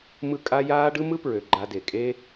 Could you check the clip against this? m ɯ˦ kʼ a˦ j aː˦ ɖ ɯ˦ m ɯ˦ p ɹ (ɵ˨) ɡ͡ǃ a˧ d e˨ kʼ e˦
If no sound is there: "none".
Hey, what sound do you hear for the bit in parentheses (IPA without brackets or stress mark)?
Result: ø˨